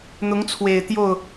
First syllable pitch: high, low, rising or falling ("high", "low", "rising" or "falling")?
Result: rising